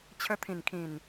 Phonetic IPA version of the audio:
t͡ɕʰ ə˧ t̪ʰ ĩ˨˩ n kʰ ĩ˨˩ n

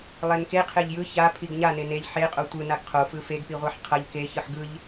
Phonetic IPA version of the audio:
lˠ e n k e qʰ e ʎ j ɯ ç a pʰ i ɡ ɲ a n e n e ʎ ħ e qʼ o tʷ ɯ n a ɡ qʰ o f ɯ f e ɡ p i ʁʷ a ħ qʰ ʌ ʎ k e ç ɯ ħ ɡ ɯ ʎ

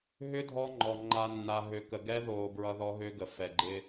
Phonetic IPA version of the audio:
ɦ ʏ˦ dʱ ɔ˦ ŋ͡ǃ ɔ˨ ŋ͡ǃ a˨ nː a˨ ɦ ø˨ k ə˨ ɡ ɛ˦ ð oː˨ b ɹ ʌ˦ ð ɔ˦ ɦ ø˦ ɡ ə˨ f ɛ˨ ɡ͡ǃ ɪ˦

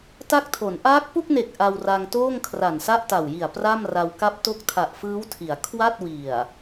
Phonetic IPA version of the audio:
t a˦˥ k̚ tʰ o˩˦ n ʔ aː˦˥ k̚ p u˥˩ k̚ n e˨˩ k̚ ʔ a˧ w r a˧ ŋ t oː˥˩ ŋ kʰ r a˨˩ n s a˥˩ ʔ t a˨˩ w j i˨˩ a̯ p r a˥˩ m r a˧ w k a˥˩ p̚ t o˦˥ k̚ tʰ a˨˩ ʔ f ɯː˦˥ w tʰ i˩˦ a̯ kʰ w a˥˩ t̚ w i˨˩ a̯

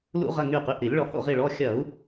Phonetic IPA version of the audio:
l ṵ˧˩˧ ʁ ɐ˩˧˩ ŋ y˧˩ q y˩˧˩ ʔ ɾ i˧˩˧ lʲ ɭ ɔ˧˩˧ h o̰˧˩ ʁ i˧˩ ɭ ɔ˩˧˩ xʲ ɐ˧˩˧ u̯

